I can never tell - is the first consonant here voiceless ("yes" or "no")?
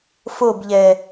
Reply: yes